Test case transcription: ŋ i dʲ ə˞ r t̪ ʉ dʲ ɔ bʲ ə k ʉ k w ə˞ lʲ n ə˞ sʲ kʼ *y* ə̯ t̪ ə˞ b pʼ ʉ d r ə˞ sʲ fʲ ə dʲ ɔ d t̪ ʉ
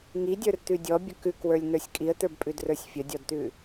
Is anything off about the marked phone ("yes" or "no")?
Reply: yes